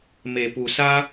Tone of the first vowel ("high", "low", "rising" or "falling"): low